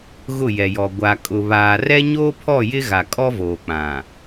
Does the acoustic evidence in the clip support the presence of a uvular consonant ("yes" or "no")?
no